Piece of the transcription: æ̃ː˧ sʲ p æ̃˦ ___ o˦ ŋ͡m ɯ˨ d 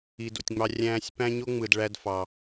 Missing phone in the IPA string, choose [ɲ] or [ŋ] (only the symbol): ɲ